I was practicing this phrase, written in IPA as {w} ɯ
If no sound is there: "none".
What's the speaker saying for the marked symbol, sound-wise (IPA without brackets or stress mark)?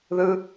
ð